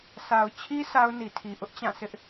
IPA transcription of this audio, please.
sa˨ʊ̯ t͡ɕʰi˦ sa˦ʊ̯ni˨tʰi˨ ʔʊ˦ʔt͡ɕã˦˨sɪ˦ʔ

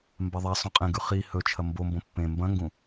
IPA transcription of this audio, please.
mbaðˤa sˤõqʼẽ ɡʉχi hɵt͡ʃʰɐ mbombõ pːẽ mbɐ̃ŋɡũ

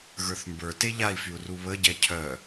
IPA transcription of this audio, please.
ɣə˞θmbə˞te ʎai̯fyu̯ ruβəɟɛ cʰœ

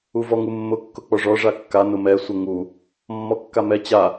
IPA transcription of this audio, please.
uvɔŋumːʊ kːʊk͡pɔʐɔ ʐakːa nʊmɛ sʷəŋu | mːɔkːamɛ t͡ɕa

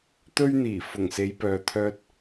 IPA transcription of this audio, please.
t̪ɵ˧ɥn̪iː˨˩ fʊ˨˩ŋse˨˧jpœː˨ t̪ʰœː˨t̚

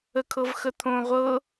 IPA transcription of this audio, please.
əkʰɤvxət̪ʰõ ʁʷɤ

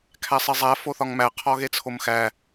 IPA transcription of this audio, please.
kʰæsˤezˤæ foθɒŋmæ qʰɒɣet͡sʰomxæ

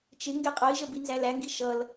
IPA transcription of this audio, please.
t͡ʃɪ ŋɡɛqʼʌi̯ʒə binzælæŋɡi ʃʌl

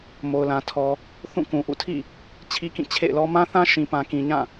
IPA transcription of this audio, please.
mo˨ʊ̯lã˨ tʰɔ˨ | θũ˦˨kũ˨ʔṵ˦˨ tʰḭ˦˨ | t͡ɕʰi˦kĩ˦˨ t͡ɕʰḛ˦˨ɪ̯lɔ˦ mã˦θã˦ ʃĩ˨pã˨kĩ˨ɲã˦˨

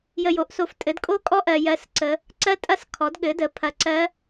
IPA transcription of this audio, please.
jə˧jo˨˥ʔso˧f tʼɘ˨˥dkʼo˦˥kʼɔ˦˥ ʔɜ˧ jɜ˦˥sǀə˦˥ | ǀɜ˦˥tʼɐ˦˥s kʰɔ˨˥dɠɘ˨˥ də˨˥pʰɐ˧ǀɜ˦˥

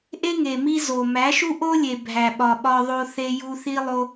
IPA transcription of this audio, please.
ʔe˦ŋe˨mi˧ zo˨ mæ˨˦ʃu˦ʔo˦lʲe˨ bʱæ˨ɓɒ˨ɓɒ˧ðˤo˧ θe˧ju˧θi˦lˠo˦

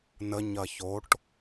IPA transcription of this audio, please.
nə ɲɐçoʈ

